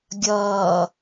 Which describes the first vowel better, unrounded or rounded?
unrounded